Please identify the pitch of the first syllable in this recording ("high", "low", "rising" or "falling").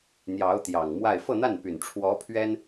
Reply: rising